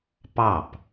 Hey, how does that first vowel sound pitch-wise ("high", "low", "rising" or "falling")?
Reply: falling